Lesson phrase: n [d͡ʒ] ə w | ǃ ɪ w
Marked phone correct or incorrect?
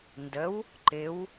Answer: incorrect